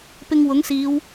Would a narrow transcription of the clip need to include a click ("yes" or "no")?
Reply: no